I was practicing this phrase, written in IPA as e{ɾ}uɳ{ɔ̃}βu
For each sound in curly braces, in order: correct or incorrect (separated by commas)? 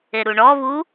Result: correct, incorrect